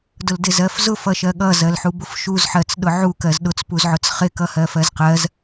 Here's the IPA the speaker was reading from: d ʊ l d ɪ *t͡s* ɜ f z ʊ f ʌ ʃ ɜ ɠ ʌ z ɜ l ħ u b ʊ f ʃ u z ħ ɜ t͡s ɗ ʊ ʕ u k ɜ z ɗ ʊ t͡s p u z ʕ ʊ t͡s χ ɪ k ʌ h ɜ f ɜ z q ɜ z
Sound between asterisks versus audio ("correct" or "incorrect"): incorrect